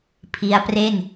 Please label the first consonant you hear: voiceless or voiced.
voiceless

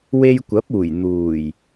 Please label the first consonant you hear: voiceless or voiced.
voiced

